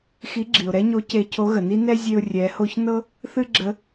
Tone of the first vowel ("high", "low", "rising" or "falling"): rising